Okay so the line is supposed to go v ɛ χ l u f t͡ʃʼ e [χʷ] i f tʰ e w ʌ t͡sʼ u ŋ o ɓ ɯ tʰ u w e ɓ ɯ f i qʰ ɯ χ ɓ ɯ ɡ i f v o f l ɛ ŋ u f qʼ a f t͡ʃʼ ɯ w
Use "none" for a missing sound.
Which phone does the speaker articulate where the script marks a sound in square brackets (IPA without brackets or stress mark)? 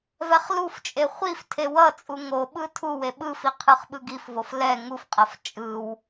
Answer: χʷ